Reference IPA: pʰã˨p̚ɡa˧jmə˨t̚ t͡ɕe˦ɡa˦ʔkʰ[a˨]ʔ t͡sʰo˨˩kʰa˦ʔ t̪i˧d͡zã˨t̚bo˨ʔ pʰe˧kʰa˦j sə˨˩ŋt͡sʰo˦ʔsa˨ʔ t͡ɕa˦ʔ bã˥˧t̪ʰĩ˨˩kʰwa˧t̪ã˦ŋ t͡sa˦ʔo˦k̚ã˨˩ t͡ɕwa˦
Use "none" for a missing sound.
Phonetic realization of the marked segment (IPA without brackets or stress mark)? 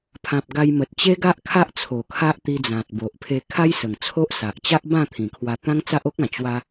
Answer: a˦